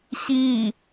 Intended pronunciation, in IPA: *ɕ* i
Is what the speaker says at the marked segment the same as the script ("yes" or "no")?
yes